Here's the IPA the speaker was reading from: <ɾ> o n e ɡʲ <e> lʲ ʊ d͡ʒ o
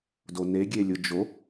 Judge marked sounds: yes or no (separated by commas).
no, yes